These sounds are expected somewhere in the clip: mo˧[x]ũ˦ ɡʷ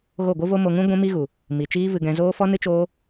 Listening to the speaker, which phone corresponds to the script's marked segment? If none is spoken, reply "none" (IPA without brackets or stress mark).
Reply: ŋ